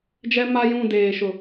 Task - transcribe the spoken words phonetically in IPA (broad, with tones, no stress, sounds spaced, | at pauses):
d͡ʒ ɛ˦ m a˦ j ũ˦˨ d eː˨ ʃ ʊ˨